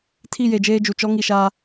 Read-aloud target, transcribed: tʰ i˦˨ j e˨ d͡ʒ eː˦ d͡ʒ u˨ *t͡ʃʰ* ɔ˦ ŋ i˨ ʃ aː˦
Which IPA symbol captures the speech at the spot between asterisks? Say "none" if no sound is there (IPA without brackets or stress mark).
t͡ʃ